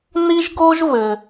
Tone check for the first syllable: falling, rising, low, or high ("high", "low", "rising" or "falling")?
high